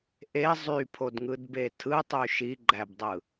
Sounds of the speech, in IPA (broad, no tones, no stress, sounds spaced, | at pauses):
ʔ e zˤ y pʰ o d ŋ ɯ d b e tʰ ɯ tˤ y ʃ i ɡ͡ǃ æ b dˤ ɯ